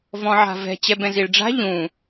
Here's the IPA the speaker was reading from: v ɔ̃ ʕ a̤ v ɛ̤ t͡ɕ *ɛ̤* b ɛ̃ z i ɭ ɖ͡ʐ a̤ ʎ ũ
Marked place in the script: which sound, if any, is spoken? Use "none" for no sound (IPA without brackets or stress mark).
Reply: ɛ